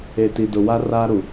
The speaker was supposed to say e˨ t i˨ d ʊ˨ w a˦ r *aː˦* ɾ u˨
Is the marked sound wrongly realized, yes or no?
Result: no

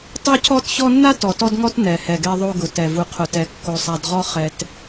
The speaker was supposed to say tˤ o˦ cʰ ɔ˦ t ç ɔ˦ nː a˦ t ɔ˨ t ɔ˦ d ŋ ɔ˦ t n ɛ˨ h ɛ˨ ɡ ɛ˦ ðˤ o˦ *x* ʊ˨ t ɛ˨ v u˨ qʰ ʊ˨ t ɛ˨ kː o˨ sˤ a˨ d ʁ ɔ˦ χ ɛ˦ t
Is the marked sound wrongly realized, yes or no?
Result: yes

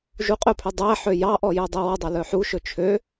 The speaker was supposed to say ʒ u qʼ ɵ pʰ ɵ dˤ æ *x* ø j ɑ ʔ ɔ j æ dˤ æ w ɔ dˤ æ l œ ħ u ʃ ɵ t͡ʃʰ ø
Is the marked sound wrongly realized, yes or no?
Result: yes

